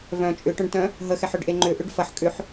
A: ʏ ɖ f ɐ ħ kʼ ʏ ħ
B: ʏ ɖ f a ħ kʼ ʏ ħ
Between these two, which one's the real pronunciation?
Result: A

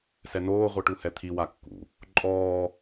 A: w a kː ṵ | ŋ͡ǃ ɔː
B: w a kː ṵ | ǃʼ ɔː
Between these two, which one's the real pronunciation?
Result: B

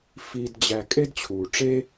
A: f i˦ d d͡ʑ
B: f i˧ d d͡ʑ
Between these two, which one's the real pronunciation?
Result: B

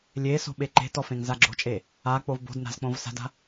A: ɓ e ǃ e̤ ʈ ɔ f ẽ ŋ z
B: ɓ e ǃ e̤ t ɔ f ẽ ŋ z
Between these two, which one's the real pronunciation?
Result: B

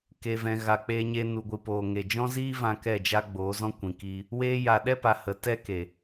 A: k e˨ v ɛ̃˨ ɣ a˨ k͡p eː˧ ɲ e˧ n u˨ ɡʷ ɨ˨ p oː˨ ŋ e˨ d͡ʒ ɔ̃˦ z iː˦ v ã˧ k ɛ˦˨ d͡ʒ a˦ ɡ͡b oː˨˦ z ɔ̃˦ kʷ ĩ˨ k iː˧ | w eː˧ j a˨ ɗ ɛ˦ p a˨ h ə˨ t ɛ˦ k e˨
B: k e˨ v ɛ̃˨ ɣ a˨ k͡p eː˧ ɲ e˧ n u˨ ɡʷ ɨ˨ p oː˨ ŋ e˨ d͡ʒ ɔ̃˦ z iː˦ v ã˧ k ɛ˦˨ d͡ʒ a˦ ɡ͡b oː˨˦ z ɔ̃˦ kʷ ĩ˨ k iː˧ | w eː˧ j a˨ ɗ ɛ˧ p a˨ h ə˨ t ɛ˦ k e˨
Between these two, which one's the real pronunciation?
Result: A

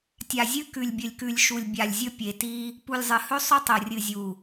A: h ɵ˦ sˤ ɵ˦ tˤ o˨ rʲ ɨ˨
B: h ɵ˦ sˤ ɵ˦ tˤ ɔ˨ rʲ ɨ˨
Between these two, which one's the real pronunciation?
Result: A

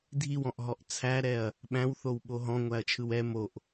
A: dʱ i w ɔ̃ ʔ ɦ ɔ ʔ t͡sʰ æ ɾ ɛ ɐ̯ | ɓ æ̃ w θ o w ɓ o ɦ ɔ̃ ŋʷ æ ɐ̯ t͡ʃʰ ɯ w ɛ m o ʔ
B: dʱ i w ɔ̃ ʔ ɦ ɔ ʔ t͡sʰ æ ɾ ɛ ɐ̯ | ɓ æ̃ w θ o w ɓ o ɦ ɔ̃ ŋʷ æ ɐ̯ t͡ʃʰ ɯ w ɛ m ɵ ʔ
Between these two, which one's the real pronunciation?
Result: A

